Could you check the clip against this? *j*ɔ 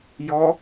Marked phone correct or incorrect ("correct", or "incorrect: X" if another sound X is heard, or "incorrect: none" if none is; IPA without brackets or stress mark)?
correct